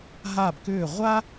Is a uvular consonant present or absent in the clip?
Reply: present